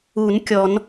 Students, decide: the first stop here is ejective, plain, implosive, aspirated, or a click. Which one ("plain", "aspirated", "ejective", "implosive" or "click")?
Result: plain